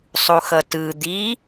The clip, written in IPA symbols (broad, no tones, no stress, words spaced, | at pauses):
sˤuxʌtɯ d̪i